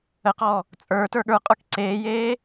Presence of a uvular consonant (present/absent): present